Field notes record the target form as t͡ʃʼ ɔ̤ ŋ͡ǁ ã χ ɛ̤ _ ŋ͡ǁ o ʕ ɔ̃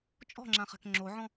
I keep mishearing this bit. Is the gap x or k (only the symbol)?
k